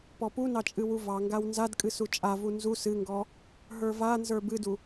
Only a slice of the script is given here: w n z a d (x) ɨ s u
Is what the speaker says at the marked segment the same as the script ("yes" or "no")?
no